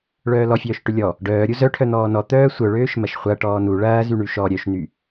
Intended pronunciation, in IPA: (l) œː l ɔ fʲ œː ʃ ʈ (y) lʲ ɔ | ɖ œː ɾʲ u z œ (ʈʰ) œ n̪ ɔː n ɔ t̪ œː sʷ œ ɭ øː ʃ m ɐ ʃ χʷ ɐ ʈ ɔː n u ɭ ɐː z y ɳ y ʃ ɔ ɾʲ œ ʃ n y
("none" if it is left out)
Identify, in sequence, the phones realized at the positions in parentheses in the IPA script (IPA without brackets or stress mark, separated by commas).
ɭ, ʏ, ʈʰ